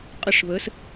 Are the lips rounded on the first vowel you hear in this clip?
no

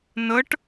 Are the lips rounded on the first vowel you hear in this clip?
no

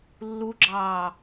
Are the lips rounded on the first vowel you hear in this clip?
yes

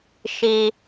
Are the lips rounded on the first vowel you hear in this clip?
no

